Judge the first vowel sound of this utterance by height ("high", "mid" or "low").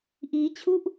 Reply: high